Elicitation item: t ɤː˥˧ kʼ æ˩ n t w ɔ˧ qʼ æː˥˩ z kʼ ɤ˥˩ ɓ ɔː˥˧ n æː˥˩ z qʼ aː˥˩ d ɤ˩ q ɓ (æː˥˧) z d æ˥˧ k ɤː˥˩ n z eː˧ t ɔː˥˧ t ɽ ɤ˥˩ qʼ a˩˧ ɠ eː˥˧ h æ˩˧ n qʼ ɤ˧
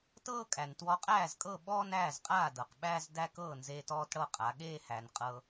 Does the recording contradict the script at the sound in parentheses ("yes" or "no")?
yes